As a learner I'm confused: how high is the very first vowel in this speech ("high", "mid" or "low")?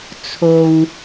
mid